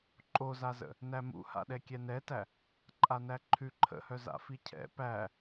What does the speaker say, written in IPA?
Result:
ǃʼ o z a z ə̰ | n æ m ṵ h a̰ ɗ ɛ kʲ ɛ n ɛ t æ | ǃʼ a n æ ǃʰ ʉ ǃʰ ə̰ h œ z a̰ f i cʰ ɛ̰ p æ

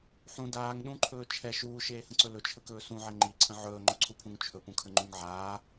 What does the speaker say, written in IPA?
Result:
ħ ũ d aː ŋ ɗ ũ ǃʰ ɵː t͡ʃʰ ɛ ʃ uː ʃ eː h ə̃ ǀ ɵ l ɵ t͡ʃʰ ə k ɵː s ũ ʕ ɛ ŋ͡ǃ i ǀʰ ə̃ ʕ ɵː ŋ͡ǃ ɵ ǀʰ u pʰ ũ ŋ t͡ʃʰ ɵ p ũ kʰ ə ŋ͡ǃ ũ ŋ ʕ aː

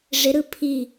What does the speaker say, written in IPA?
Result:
ʐ ɪ ɾ ɯ pʰ i

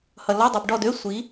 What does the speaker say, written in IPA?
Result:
h ʌ˨ l ɔ˧˥˧ dˤ i˨ b ɖ ɔ˦˨ d ø˧˥˧ sʷ i˨˥

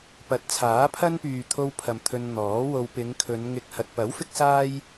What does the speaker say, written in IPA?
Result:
p ɐ˨˥ t̚ t͡sʰ aː˨˥ pʰ ɐ˥ n p yː˨ t̪ʰ o˧ w pʰ ɐ˨ m t̪ʰ ɵ˧ n n̪ ɔː˨˥ w o˧ w p ɪ˨˧ ŋ kʰ ɵ˨˧ n ŋ ɪ˧ k̚ h ɐ˨ t̚ p ɐ˨˥ w f ɪ˥ k̚ s aː˥ j

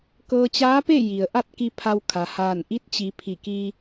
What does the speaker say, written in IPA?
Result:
k ɤː˧ t͡ɕ aː˧˥ p e˥˨ j i˩ ə̯ ʔ a˥˨ t̚ k i˧ pʰ a˧ w kʰ a˩ h aː˧˩ n ʔ i˧˥ t̚ t͡ɕ i˩˧ pʰ i˧˩ k i˧

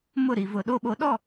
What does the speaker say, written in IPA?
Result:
m ʊ˦˨ ɾ i˨ v ʊ˨ ɗ o˦ ɓ o˨˦ ɗ ɔ˦˨

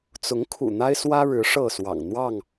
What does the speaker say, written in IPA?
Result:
t͡s ʊ˨˦ ŋ kʰ ṵ˨˩ n̪ a˦ ɪ̯ s w ä˦ ɻ ɻ̩˨˦ ʂ ɤ˥˨ s w ɑ̰˨˩ ŋ n̪ w ɑ˥˨ ŋ

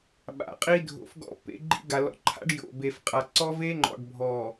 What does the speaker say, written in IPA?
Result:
ɓ a̰˨ qʼ i˦ dʱ o̰˨ f ɡ ɔ̰˦ pː ḛ˦ ɡ͡ǃ ḭ˦ ɡ a˨ l ɔ̰˨ ǃʰ a̰˦ ɖ j o̰˨ b e˨ f qʼ a˨ ǀ ɔ˦ v e˦ ŋ͡ǃ ɔ̰˨ ɖ bʱ ɔ˨

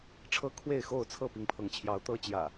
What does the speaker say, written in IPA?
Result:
ʈ͡ʂʰ ɤ˦ kʰ w e˥˨ ɪ̯ x o˥˨ ʊ̯ t͡sʰ ɤ˥˨ p i˨˦ ŋ pʰ ɤ˨˦ ŋ t͡ɕʰ j ɑ˨˦ ʊ̯ t̪ ɤ˨˦ t͡ɕ j ä̰˨˩

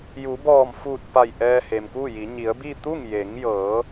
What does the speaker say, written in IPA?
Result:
j u˩˧ b ɔː˧˩ m f uː˧˩ t̚ p a˧˩ j ʔ ɛː˧ h e˩ m k uː˥˨ j i˩˧ ɲ i˩˧ ə̯ b i˥˨ t̪ u˥˨ ŋ j e˩˧ ŋ j ɤː˩˧

